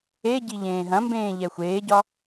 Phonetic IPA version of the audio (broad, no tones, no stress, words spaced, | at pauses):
eɟi ʎẽːɦɐ̃mbẽː ʎɛxʷeːɟɒ